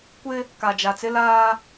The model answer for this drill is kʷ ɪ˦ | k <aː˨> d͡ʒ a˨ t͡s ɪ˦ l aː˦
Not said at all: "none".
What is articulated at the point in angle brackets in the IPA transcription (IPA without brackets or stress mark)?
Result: a˨